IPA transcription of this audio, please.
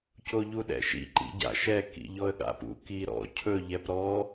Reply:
c o ʎ u ɗ ɛ̰ ʃ ḭ ǃ ḭ ɟ a̰ ʃ ɛ k ḭ ʎ ɔ ə̯ ɠ a̰ p ṵ k i ɾ ɔ̰ cʰ ɵ ʎ ɛ p ɾ ɔ

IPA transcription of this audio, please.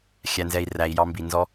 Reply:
xʲ æ˨ n z ɛ˨ i̯ r æ˨ i̯ j ɑ˦ m b i˨ n z ɔ˦

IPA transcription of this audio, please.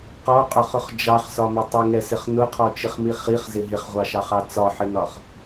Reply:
q ɔ qʼ ɒ χ ʊ χ d͡ʒ ɑ χ s ɒ m ɪ tˤ ʊ ŋ ɛ s ɪ χ n ʊ qʰ ɔ t͡ʃ ɪ χ m i χ i χ z ɪ ɦ ɪ χ ʁʷ ɑ ʃ ɑ χ ɑ t͡s ɒ ħ ɪ n ɒ χ

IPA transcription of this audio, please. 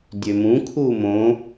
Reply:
dʲ ø m ũ kʰ u m õ

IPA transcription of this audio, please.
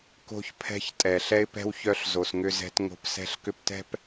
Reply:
k o̤˦ ç pʰ ɛ̤˦ ç tʼ ɛ˨ ɬ ɛ˦ ɪ̯ p ɛ̤˦ w ç œ˦ ɬ z o˨ s ŋ ʏ˦ z ɛ̤˦ t ŋ o̤˦ p s ɛ̤˦ ɬ k ʏ˦ p t ɛ̤˦ p

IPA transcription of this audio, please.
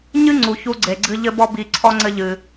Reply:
ɲ ɨ˦ ŋ͡ǀ u˨ ç u˧ ɡ͡ǀ e˨ ɡ͡ǀ ɨ˧ ʎ ɘ˧ b ɔ˧ b i˨ ǀʰ ɔ˦ ŋ͡ǀ ɘ˦ ʎ ɨ˧

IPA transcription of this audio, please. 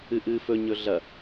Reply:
ɨ ʔ ɨː f ɵ ɲ ɵ ɮ ɐ

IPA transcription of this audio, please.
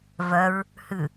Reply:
v œ ɹ | h ʉ

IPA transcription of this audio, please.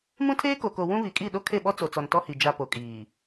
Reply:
m ũ˦ tʰ eː˦ k o˨ k o˨ w ũ˦ β i˨ kʼ i˦˨ ɗ o˦ kʰ e˦˨ ɓ ɔ˦ t͡s o˨ t͡s ɔ˨ n t ɔ˦ h i˨ d͡ʒ a˨ p o˨ kʼ iː˨

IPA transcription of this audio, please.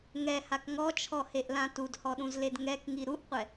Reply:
ŋ ɛ h a k ŋ ɔ t͡ʃʰ ɔ h e ʔ l ã t u d h ɔ ɗ ũ z l e d ŋ ɛ k ŋ i ɾ u ʔ qʷ ɛ

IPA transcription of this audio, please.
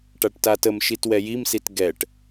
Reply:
ʈ a ʈ t a t ə m ʃ i t w ɛ j i m s i t ɡ ɛ ʈ

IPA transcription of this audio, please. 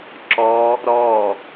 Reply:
ǁ ɔ | ɾ ɔ

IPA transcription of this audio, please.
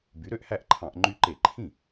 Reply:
b y˩˥ ɾ ø˦ ʔ h æ˥˩ ʔ ǃʰ ɑ̃˧˩˧ ʔ ŋ͡ǃ y˦ ǃ e˧˩˧ ǃʰ ĩ˥˩

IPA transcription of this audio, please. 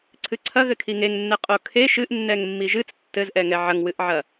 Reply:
ǀʰ ɨ ǀʰ ɐ ɣ ɘ kʰ i ŋ e ŋ nː ɛ qʼ o kʰ e ʃ ɨ ʔ nː ɛ ŋ mː i ʒ ɨ t͡s tː ɘ z ʔ ɛ ŋ ɛ ʕ ɐ ŋ w ɨ ʔ ʕ ɐ

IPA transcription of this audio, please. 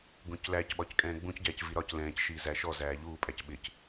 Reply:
ɡ ũ c l æ c ɓ ɒ c kʼ ɛ̃ː ɡ͡b ũ c ɟ æː c v i ɾ ɒ c l ɛ̃ː c ʃ iː z æ ʃ ɔ z æː ʎ uː pʼ æ c ɓ ɪ c

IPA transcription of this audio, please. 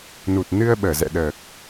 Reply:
n u˨˩ t̚ n ɨ˧ ə̯ ɓ əː˧˩ z ɛ̰˧˨ ɗ əː˨˩ k̚

